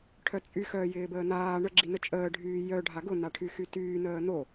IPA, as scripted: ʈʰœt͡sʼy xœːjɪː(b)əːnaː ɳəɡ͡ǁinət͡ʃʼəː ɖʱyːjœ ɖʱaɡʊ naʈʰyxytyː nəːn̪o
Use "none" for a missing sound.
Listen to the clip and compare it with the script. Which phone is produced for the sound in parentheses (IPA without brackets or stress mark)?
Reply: b